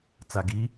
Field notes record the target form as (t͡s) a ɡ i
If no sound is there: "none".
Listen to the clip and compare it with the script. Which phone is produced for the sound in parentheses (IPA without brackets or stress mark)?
t͡s